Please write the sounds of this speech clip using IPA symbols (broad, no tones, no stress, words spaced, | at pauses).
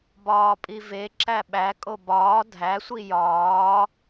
bɒːpʼive ǁæɓæ kʼobɒː dʱæ sʷijɒː